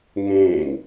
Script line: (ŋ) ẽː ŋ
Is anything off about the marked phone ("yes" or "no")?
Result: no